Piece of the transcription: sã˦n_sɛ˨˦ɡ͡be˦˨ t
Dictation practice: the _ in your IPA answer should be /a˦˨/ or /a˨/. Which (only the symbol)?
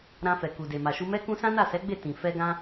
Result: a˦˨